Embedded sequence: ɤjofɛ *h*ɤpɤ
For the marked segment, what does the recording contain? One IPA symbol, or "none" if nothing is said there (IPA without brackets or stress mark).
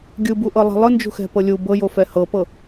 h